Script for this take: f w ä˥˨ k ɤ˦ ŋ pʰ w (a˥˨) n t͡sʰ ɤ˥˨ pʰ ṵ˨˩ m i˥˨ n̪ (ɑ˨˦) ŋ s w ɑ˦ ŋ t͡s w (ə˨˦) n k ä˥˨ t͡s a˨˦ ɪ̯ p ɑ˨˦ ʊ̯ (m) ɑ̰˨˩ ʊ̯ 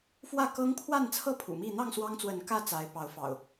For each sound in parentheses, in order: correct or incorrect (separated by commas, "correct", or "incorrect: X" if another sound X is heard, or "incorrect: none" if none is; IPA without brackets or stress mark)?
correct, incorrect: ɑ˥˨, correct, incorrect: f